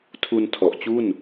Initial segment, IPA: tʰ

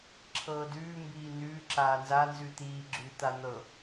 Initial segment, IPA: ǁʰ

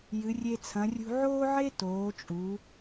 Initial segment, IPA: j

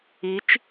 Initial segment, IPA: i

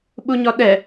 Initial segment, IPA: ɓ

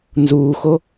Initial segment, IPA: n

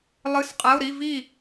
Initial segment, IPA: lˠ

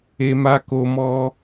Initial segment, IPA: e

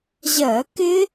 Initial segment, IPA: ʑ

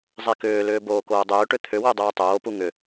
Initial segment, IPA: zˤ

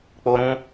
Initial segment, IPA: k͡p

